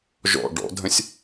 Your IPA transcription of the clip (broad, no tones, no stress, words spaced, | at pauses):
ʒɔ̰ ɖɔ̰dʱə̃sʲ